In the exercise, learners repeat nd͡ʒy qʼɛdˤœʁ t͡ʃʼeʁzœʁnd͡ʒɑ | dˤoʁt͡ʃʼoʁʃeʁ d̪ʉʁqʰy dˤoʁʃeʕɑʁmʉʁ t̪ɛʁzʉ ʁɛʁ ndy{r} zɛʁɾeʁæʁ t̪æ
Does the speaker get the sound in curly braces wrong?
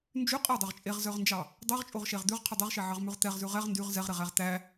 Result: yes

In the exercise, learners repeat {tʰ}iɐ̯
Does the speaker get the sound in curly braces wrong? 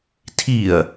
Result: no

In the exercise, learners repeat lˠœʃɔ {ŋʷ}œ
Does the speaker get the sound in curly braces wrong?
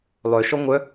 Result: no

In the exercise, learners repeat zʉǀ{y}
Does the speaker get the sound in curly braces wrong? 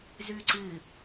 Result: yes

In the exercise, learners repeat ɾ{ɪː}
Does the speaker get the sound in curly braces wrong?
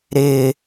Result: no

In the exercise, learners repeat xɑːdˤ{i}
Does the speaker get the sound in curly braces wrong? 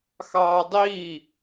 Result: yes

